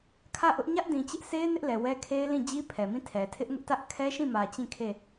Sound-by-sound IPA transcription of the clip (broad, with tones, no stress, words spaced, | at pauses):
kʰä˦˨ʔʊ˦ʔ ɲä˦ʔdĩ˨t͡ɕɪ˦ʔse˦ɪ̯ nɪ˦ʔlɛ˨wɛ˦kʰe˦ɪ̯ lĩ˦˨ d͡ʑi˦pʰɛ˨mĩ˦˨tʰɛ˨ tʰɪ˦ʔŋʊ˦ʔtä˦ʔ kʰɛ˦ʃĩ˦˨mä˨ t͡ɕĩ˦˨ kʰe˦˨